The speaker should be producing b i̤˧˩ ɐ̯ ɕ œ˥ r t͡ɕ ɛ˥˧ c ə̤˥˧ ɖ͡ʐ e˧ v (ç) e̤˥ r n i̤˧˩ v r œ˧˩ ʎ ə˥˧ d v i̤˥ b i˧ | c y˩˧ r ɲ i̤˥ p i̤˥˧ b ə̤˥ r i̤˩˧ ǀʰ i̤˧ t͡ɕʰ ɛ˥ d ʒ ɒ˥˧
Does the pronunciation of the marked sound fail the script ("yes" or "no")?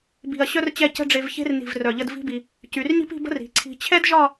no